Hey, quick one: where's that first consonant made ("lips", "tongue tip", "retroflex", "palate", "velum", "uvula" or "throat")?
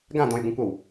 velum